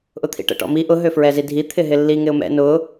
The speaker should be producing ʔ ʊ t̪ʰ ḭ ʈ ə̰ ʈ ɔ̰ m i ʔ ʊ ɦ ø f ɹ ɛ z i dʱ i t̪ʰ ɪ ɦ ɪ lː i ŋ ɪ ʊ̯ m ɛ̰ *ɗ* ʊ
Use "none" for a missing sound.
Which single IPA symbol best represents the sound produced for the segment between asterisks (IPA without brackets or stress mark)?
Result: n